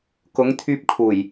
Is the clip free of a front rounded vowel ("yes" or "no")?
no